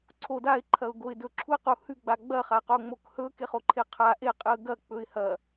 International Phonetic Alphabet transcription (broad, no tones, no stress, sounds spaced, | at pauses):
ǀʰ o d a ɪ̯ ǃʰ ɐ ʊ̯ ɡ o ɪ̯ d ɵ ǁʰ u ə̯ q u h ʉ ɡ͡b a ɡ͡b ɐ χ a q o ŋ͡m o k h ɵ k e χ o ǃʰ e qʰ a ʔ e qʼ ɨ ə̯ ɡ ɐ k͡p ɵ ɪ̯ h ɐ